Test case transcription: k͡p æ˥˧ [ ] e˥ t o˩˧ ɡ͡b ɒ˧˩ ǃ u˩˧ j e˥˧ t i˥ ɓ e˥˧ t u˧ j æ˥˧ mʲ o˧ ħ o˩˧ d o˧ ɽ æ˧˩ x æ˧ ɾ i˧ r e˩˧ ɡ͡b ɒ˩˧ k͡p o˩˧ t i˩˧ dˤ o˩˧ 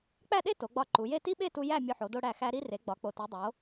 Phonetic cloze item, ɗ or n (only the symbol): ɗ